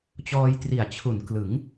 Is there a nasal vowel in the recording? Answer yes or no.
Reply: no